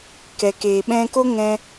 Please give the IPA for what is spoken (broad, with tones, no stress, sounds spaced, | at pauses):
k ɛ˨ k eː˨ ɓ ɛ̃˧ k o˦ ŋ ɛ̃˧